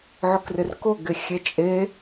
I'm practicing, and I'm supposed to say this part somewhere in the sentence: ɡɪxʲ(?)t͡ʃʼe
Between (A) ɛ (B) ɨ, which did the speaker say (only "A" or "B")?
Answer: A